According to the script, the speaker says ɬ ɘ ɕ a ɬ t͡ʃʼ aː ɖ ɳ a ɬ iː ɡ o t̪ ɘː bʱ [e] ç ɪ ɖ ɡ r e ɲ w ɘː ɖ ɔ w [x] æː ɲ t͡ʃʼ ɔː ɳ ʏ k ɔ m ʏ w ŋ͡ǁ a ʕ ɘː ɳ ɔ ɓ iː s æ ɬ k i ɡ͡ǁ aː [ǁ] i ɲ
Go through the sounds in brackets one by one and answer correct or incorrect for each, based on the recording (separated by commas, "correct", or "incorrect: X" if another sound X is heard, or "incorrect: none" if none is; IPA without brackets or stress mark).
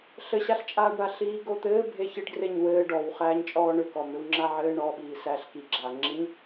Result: correct, incorrect: χ, incorrect: ŋ͡ǁ